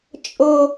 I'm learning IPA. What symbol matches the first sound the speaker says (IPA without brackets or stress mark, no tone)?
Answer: t͡ʃʼ